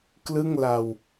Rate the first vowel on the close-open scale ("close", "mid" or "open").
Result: close